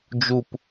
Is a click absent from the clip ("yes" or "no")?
yes